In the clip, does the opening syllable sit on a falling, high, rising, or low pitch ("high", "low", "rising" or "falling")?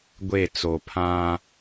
falling